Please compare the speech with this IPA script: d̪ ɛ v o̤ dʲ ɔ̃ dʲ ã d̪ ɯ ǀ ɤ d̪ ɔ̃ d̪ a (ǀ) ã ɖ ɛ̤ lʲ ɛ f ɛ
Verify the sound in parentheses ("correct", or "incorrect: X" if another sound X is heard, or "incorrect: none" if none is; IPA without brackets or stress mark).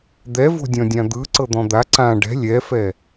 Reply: correct